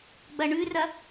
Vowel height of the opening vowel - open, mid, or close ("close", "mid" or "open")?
open